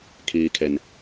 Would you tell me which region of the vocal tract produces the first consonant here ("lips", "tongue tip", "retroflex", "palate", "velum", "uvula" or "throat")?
velum